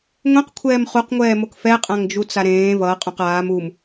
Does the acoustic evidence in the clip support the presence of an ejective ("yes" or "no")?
yes